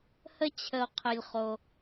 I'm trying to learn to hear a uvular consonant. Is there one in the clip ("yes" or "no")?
yes